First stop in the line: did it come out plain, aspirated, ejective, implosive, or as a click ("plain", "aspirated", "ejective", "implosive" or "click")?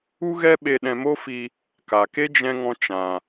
implosive